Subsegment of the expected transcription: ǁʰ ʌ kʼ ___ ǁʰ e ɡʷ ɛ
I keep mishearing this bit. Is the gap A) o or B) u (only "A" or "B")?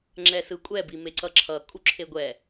B